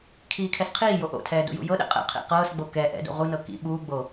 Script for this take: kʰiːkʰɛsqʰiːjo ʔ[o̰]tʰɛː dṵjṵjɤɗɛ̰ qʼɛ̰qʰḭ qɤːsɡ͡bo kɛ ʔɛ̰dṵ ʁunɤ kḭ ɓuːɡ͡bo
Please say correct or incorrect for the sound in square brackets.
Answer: correct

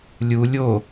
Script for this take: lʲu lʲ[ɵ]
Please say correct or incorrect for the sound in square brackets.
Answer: incorrect: o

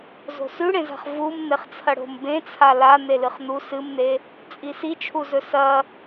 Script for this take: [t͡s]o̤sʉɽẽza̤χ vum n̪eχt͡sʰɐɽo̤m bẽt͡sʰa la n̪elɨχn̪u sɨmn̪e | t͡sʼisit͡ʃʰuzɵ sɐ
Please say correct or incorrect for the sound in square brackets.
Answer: incorrect: z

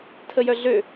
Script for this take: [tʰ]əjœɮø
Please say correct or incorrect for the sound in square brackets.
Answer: correct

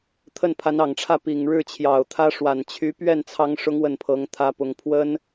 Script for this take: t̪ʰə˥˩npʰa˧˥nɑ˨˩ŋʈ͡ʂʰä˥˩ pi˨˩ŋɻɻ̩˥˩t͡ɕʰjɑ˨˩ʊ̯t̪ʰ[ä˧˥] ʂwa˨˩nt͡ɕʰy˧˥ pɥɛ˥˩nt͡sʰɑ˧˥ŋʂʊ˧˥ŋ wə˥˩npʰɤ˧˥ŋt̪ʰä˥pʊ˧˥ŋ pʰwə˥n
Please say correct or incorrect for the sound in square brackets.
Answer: incorrect: ä˥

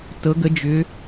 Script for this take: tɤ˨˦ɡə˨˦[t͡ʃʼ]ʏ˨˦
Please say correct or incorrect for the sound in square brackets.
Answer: incorrect: d͡ʒ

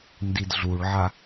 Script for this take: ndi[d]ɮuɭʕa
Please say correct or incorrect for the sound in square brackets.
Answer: correct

